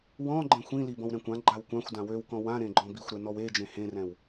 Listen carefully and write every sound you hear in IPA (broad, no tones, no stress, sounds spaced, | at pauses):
w ɔ̃ ɡ͡ǃ ẽ xʷ ĩ l i b ɔ̃ w ɾ ɛ̃ kʷ ã ɡ͡ǃ a w kʷ ã xʷ d ã w ø w k ɔ̃ w ã ɾ ẽ ɡ͡ǃ ɔ̃ b i xʷ ɾ ɛ n ɔ w e d͡ʒ ẽ h ẽ r ɛ̃ w